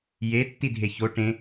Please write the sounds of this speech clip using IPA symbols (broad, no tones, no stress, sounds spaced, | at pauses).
j e tː i dʱ e ç o ʈ ẽ